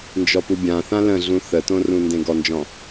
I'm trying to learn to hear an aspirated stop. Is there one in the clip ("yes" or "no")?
no